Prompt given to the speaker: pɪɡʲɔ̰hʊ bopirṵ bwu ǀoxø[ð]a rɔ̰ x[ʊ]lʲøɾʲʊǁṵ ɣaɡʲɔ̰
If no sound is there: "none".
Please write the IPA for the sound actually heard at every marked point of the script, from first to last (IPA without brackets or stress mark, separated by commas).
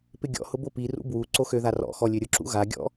ð, ɔ